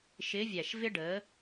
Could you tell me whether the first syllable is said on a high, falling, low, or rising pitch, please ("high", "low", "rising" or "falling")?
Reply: rising